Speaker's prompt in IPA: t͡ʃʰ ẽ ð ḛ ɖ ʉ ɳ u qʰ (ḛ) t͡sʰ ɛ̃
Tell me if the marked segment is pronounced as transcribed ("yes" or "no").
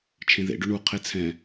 no